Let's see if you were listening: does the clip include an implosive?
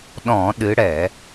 yes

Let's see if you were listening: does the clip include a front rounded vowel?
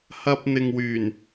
yes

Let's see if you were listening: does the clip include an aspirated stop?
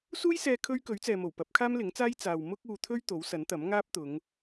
yes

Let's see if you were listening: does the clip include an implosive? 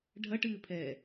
no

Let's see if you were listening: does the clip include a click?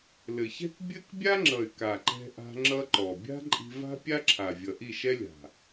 yes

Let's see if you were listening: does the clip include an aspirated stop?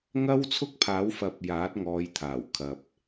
yes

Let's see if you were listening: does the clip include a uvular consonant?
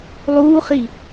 yes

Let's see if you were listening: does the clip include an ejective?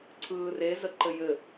no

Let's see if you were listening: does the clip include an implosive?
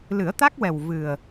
no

